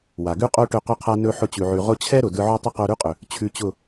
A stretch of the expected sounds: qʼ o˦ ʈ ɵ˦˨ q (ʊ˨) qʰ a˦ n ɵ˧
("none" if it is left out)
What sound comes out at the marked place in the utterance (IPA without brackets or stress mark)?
ʊ˦